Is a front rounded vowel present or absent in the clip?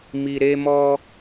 absent